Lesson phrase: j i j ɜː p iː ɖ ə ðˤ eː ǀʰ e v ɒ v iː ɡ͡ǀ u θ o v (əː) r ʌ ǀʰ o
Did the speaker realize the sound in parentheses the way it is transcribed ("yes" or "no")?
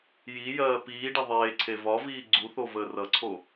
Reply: yes